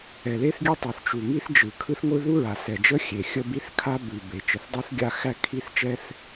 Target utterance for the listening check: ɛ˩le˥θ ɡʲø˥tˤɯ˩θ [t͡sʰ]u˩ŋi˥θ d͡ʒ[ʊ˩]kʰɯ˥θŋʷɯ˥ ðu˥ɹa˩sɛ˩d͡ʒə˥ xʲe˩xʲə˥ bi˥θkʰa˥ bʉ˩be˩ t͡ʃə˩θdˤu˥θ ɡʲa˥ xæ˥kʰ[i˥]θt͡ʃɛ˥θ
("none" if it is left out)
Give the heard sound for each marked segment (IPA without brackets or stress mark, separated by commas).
t͡ʃ, ɯ˩, i˥